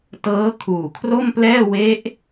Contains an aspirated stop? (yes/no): yes